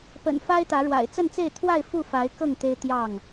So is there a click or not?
no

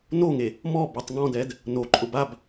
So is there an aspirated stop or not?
no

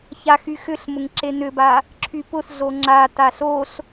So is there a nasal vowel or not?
no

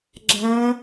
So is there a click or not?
yes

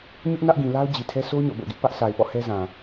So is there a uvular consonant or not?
no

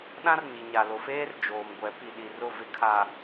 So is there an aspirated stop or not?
yes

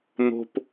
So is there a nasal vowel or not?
no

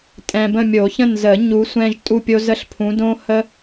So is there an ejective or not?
yes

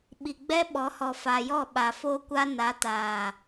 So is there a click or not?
no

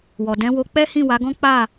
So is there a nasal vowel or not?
yes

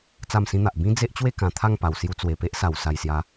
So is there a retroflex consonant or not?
no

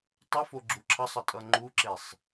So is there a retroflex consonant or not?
no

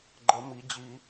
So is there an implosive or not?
no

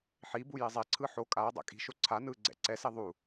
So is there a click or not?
yes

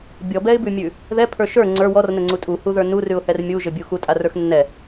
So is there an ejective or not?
yes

